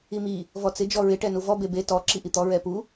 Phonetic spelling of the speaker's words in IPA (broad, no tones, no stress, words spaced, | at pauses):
imi | vɔt͡sɪ d͡ʒɔɹɪ ʈɛnuvɔ bebe tɔ ǁiʔit̪ɔ ɹɛpu